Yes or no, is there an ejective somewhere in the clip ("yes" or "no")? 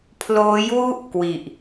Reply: no